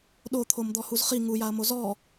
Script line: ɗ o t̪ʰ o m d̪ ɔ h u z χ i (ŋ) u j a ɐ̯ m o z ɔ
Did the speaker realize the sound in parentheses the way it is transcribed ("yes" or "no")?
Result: yes